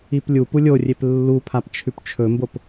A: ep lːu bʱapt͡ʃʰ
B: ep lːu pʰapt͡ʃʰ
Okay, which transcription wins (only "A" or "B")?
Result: B